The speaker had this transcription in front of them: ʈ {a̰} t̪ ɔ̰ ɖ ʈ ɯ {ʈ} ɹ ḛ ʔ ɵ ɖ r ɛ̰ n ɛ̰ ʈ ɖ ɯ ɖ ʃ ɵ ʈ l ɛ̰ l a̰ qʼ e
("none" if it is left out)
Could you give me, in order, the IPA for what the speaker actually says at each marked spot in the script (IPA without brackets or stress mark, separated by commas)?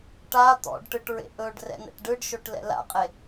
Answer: a, ʈ